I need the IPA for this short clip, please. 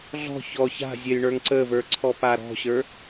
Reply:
ɮ ɔ̤ ç ɔ ç a̤ zʲ ɜ j ɳ ə˞ ŋ ǀ ə v ə˞ ǀʰ ɔ p a ɾ ɔ̤ ɕ ə˞

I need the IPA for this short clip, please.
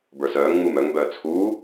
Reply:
b ə˞ s œː ŋ ŋ͡m u m œ ŋ b œː t͡sʰ uː

